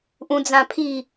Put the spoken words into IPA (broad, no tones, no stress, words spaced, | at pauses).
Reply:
ʔũd͡zãpʰi